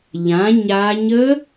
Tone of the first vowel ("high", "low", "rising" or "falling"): rising